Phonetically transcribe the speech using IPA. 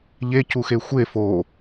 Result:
ʎ e c u x e xʷ e f o

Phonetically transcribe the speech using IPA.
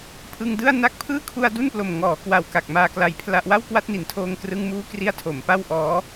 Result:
pʰ ɯ˧ ŋ d ɯ˥˩ a̯ n a˦˥ k̚ pʰ ɯː˥˩ kʰ u˧ a̯ d u˥˩ n p l o˨˩ m ŋ ɔː˩˦ k w a˨˩ w k a˨˩ k̚ m aː˧ k l a˧ j pʰ l a˥˩ ʔ w a˥˩ w k w a˥˩ t̚ n i˨˩ n tʰ oː˧ ŋ k r ɯ˧ ŋ m uː˦˥ k r i˧ a̯ tʰ o˩˦ m p a˥˩ w ʔ ɔː˦˥

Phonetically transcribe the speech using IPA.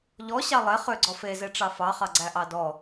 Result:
ʎ ɔ ɕ ɑ lˠ e χ ø ɡ͡ǀ ɔ f e z e ʈ͡ʂ ɑ f ɑ χ ɑ ɡ͡ǀ æ ʔ ɑ d ɔ

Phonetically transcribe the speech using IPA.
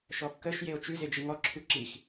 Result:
ʃ ɔ kː ə ʃ j e o̯ t͡ʃ ʉ z e d͡ʒ i ŋ ɔ ǁʰ ʉ ǁ i x

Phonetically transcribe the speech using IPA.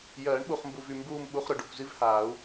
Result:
j ɜː˨˩˦ ɳ ɓ u˨ χ m b u˨ v y˨ m b uː˦˨ m ɓ u˧˥˧ χ ɾ ʊ˨ ɖ ʊ˦˨ kʷ z i˥ v h aː˨˩˦ u̯

